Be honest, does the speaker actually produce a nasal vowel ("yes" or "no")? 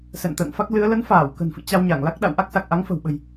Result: no